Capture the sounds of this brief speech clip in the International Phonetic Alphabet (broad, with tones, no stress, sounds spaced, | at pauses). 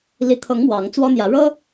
l i˨˦ t̪ʰ ɤ˨˦ ŋ m w ɑ˨˦ ŋ t͡s w ɔ˦ n̪ j ä˨˦ ɻ ɤ˦